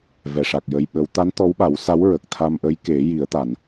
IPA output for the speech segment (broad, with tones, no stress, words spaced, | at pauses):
vɛ˨˩˨ʂa˨˩k̚jə˧jɓə˧˥w t̪a˧˥n t̪ɔ˧˥wɓa˨˩˦wsa˧˥wɹə˨˩k̚ t̪ʰa˧mʔə˧˥jke˨˩˦ ji˨˩˦ə̯t̪a˨˩˨n